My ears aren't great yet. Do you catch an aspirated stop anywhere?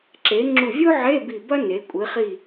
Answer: no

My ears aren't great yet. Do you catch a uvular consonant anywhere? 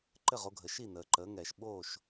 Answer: yes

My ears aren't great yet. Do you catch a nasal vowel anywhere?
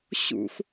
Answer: no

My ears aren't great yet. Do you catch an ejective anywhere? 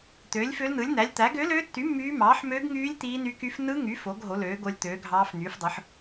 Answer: no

